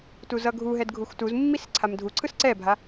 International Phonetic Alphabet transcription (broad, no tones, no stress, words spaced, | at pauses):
tuzʌɡʱuɦɛd ɡʱuxtuzmːis ǀʰamdʱuǀʰɯs ǀɛbʱa